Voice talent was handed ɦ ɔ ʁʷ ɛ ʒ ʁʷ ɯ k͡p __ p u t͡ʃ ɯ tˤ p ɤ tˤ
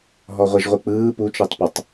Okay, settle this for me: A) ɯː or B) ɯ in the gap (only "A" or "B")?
A